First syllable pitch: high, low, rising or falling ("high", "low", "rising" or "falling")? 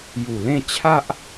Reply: low